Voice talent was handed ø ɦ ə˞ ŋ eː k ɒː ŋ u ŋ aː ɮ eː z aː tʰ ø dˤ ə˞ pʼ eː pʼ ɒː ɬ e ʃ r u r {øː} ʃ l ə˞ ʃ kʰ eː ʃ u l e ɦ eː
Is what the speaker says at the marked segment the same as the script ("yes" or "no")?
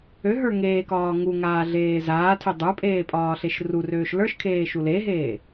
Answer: yes